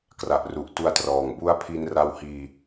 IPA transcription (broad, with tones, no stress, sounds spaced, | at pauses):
k r a˨˩ ʔ r u˨˩ ʔ t u˦˥ a̯ t r ɔː˨˩ ŋ b u˦˥ a̯ pʰ i˧ n r a˧ w h iː˧